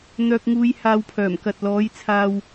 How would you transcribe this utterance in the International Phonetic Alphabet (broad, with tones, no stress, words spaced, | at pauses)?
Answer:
n̪œː˨k̚ŋuː˨˧j haː˧wpʰœː˨˩mkɐ˨t̚ lɔː˨˥jt͡sʰaː˧w